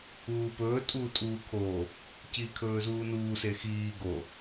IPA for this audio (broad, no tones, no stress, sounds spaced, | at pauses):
uː p ɵː tʼ uː tʼ uː kʰ o | c iː kʰ ɵː z uː n uː s e x iː ɡ o